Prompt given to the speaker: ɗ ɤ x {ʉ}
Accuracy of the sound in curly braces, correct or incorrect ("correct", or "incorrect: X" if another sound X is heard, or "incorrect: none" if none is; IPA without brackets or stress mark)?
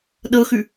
correct